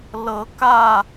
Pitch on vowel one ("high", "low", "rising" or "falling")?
rising